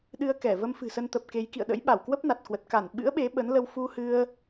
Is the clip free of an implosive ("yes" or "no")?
no